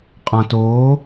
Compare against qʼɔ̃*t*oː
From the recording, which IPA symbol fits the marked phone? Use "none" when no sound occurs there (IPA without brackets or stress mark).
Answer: t